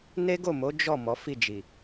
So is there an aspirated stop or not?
no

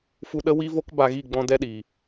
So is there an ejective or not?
no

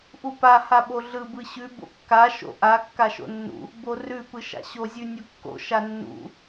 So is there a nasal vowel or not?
no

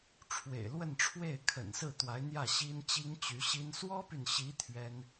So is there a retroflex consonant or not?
yes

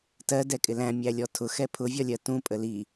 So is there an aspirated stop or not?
yes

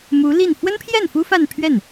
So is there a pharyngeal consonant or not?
no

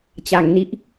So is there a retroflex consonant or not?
no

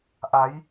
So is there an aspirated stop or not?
no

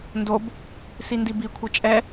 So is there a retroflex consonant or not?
no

